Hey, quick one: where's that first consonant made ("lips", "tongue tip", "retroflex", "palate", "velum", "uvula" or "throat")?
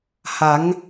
throat